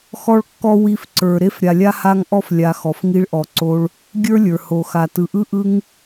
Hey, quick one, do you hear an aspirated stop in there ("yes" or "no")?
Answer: no